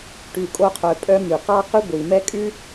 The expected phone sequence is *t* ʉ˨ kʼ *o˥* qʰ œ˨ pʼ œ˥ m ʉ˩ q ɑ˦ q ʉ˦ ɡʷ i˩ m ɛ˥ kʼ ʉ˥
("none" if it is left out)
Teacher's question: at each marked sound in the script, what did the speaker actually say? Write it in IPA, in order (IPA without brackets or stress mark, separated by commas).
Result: ʈ, o˦